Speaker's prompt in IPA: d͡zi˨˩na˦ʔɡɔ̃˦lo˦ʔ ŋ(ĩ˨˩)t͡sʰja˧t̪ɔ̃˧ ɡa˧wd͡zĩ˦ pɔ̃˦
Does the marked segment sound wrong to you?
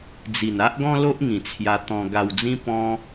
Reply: no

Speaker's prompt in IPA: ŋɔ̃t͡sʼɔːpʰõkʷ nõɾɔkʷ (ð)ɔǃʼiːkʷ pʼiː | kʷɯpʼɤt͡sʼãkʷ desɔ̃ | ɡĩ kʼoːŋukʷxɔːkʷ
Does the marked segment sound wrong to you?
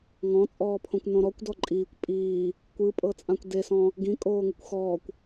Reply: yes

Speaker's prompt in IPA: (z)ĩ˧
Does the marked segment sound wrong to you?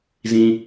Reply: no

